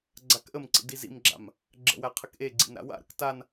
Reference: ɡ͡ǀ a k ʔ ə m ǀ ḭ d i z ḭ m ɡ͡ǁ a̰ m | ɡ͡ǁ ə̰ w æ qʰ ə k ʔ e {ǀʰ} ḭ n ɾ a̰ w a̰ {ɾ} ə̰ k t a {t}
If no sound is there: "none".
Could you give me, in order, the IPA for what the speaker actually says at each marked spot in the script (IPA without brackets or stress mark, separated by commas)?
ɡ͡ǀ, ɾ, n